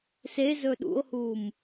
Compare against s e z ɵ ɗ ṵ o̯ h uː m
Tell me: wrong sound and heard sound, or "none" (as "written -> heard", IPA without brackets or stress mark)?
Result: none